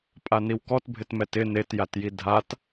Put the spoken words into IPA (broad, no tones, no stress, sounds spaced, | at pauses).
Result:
pʼ a n i w k ɔ t bʱ ɪ t m ɛ t ɪ n e t j a t j i dʱ a t